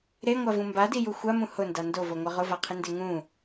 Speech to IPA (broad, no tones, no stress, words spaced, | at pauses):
ɾeŋʷavũ mbadiju xʷamũ hʊnda ndovoŋʷɛ ʁʊvaqʰɪnde ŋũ